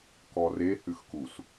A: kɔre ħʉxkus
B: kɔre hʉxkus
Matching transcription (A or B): B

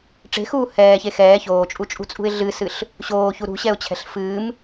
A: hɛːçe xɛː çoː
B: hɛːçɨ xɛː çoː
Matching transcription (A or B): A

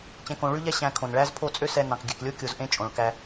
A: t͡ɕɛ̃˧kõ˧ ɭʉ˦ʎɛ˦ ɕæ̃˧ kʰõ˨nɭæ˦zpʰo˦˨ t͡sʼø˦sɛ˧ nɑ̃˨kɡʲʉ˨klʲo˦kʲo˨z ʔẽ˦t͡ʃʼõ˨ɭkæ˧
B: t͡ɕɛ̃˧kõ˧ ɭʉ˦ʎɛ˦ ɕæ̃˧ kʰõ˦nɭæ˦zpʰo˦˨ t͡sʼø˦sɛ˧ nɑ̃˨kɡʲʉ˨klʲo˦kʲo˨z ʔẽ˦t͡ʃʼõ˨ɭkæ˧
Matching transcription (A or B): A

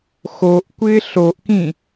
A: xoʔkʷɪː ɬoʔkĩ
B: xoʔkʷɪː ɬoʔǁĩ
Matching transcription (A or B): A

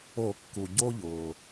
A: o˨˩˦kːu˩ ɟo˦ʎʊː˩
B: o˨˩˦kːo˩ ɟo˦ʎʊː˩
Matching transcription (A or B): A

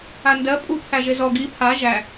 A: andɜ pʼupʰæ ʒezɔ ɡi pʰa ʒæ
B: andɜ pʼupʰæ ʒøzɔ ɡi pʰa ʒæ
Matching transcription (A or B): A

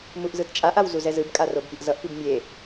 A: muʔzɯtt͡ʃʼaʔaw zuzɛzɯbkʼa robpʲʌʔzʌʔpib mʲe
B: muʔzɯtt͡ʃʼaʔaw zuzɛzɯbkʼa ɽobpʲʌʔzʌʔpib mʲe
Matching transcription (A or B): A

